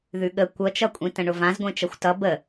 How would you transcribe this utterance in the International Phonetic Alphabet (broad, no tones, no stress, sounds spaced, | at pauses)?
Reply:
ð ʉ ɠ ə kʷ ʌ t͡ʃ ʌ kʷʼ ĩ t ə̃ ɳ ʊ v ã z ɡʷ ẽ t͡ʃ ʌ xʷ t ʌ b ə